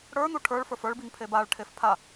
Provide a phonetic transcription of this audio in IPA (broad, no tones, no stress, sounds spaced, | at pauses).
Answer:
ɽ ə˞ n̪ u ʈʰ ə˞ ɭ f ə˞ f ə˞ ɭ b i ŋ pʰ e b a ɭ ʈʰ e f pʰ a